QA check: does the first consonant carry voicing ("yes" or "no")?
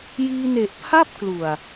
yes